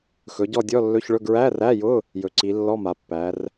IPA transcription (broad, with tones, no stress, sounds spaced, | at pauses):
x ɵ˩˧ ɟ ɔ˦˨ dʲ ɔ˧˥˧ lː ɵ˧˥˧ ç ɭ ɵ˧˥˧ ɡ ɹ æ˧˥˧ r æ˧˥˧ j ʊ˧˥˧ | j ɵ˩˧ ǀ i˩˧ lː ɔ˧˥˧ m a˩˧ pː æ˩˧ r